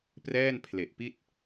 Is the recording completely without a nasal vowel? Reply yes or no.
yes